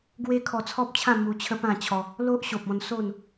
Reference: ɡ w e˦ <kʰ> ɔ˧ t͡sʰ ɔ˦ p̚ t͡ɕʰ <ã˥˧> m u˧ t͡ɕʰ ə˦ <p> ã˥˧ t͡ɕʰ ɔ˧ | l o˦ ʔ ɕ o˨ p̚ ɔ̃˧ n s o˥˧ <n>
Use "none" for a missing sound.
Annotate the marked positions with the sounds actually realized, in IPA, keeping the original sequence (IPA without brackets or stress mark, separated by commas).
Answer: kʰ, ã˥˧, p, n